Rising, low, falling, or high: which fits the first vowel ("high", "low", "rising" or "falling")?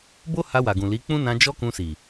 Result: high